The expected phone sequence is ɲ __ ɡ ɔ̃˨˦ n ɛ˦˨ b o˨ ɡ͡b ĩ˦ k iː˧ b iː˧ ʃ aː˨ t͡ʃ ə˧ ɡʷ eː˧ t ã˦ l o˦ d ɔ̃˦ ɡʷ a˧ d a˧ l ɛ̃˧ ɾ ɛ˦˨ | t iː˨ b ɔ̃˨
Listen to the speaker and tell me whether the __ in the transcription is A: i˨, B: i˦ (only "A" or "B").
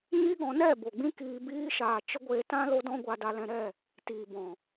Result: B